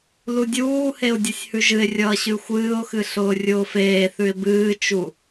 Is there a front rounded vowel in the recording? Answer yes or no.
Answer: no